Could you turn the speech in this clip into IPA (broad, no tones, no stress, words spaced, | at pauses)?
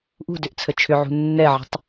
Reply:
ʔṳdʏʔt͡sʰə t͡ʃʰʏʕṳ nːɛʕə̤tˤ